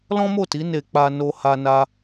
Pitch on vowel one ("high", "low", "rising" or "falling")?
high